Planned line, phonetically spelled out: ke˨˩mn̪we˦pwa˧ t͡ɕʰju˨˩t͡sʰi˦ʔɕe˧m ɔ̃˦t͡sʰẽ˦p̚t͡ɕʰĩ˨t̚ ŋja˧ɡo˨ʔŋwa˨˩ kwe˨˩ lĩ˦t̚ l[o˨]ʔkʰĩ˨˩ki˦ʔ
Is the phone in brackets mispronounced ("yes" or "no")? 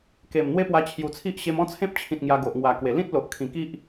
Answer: no